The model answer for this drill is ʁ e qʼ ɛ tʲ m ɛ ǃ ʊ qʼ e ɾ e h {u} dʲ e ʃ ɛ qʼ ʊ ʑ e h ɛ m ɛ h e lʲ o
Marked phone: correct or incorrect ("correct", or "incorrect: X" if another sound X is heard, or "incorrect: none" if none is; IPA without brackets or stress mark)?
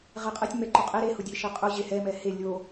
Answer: incorrect: ʊ